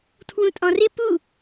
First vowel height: high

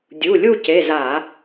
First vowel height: high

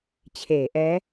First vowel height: mid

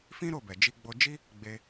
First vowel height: high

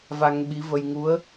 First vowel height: low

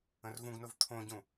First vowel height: mid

